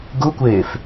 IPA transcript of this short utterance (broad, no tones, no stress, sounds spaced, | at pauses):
ɡ u kʷ eː f